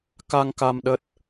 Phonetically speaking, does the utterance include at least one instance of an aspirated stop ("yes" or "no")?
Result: no